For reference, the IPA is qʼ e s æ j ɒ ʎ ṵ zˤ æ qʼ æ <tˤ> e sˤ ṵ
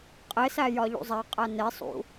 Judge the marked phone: incorrect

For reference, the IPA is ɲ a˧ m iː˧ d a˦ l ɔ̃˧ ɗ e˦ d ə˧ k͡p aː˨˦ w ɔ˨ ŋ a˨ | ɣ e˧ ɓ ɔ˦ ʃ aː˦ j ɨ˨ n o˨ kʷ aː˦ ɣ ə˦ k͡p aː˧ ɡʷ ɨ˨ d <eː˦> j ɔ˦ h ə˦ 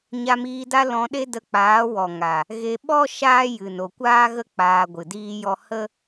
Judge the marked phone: incorrect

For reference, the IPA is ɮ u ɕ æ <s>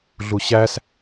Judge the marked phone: correct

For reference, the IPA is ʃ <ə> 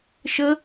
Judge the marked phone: correct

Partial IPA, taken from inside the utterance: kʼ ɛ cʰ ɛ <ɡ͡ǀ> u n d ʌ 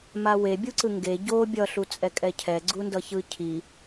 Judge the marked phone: correct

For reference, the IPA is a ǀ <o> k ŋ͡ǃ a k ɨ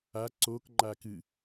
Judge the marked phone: correct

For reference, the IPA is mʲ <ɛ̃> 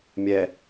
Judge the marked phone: incorrect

